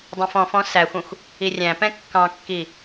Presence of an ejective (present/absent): absent